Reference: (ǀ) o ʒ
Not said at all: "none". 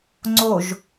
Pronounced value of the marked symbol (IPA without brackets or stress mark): ŋ͡ǀ